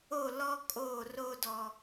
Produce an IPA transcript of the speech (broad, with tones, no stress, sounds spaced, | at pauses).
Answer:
o˦˨ l ɔ˦ kʼ oː˦˨ r oː˦ d ɔ˨